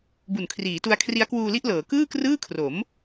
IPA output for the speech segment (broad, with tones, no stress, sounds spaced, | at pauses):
b u˨˩ n kʰ r iː˩˦ t u˧ a̯ kʰ r i˦˥ a̯ k w uː˧ l i˥˩ ʔ l ɤː˩˦ k ɯː˥˩ k r ɯː˥˩ kʰ r o˩˦ m